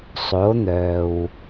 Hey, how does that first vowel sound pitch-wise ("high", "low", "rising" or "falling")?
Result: rising